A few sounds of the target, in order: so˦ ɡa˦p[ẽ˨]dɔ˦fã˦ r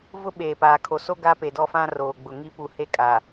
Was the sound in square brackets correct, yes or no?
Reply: no